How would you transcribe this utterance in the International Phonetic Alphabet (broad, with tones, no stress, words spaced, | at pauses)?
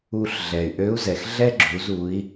u˧ɬ ɮɛ˩y̯ʔø˧˥u̯zɛ˩x ɮɛ˥ ɡ͡ǁu˩˧zu˩˧i̯